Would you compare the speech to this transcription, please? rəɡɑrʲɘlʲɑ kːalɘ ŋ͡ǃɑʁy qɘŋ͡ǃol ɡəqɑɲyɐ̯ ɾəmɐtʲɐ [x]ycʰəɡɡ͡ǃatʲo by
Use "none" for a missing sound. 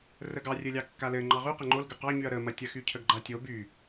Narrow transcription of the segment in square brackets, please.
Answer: x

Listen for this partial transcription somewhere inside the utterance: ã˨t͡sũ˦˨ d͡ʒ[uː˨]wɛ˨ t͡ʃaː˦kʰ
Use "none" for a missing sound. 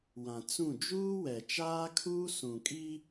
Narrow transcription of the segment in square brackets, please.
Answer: uː˦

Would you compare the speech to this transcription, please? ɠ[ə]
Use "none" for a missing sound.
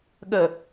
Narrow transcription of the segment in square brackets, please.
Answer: ə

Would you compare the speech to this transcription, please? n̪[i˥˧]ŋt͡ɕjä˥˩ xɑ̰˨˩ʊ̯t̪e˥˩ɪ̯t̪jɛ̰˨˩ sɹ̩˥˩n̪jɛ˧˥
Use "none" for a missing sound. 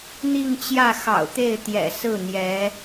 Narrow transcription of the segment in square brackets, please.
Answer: i˥˧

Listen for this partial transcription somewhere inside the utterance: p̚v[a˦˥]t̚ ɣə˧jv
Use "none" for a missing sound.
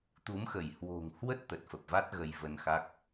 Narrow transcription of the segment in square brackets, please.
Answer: a˦˥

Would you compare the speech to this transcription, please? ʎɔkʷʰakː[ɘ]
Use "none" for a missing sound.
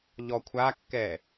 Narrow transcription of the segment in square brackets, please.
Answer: ɛ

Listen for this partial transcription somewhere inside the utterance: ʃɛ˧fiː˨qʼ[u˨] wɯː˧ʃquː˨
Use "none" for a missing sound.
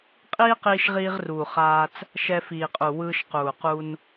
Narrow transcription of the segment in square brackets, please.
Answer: u˨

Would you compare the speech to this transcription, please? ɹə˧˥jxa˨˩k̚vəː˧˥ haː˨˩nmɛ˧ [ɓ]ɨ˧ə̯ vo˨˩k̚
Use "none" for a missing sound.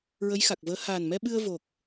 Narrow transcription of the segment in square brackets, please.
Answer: ɓ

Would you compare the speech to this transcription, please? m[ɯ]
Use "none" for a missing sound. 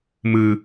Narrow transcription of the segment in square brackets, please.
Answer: ɯ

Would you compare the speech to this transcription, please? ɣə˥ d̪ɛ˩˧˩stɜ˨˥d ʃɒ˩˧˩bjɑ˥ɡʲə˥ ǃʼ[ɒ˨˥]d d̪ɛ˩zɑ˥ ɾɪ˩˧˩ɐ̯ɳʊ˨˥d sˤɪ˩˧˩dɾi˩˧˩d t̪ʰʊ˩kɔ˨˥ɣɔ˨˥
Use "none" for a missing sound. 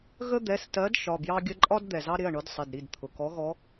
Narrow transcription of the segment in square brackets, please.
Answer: ɒ˥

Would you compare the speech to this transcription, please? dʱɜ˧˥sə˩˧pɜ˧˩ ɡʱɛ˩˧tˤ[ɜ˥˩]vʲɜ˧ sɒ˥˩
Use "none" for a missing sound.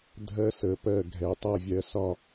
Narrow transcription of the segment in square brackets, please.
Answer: ɜ˥˩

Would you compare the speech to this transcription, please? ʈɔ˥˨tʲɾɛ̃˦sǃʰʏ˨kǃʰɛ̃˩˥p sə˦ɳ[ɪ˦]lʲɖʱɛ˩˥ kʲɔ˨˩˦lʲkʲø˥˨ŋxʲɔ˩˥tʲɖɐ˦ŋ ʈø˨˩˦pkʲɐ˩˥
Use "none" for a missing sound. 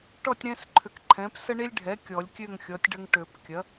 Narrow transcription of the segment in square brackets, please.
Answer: i˦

